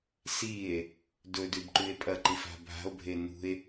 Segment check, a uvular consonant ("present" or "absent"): absent